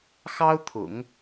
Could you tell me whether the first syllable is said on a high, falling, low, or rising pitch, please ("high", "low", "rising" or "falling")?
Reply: high